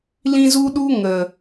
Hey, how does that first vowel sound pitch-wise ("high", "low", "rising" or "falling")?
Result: high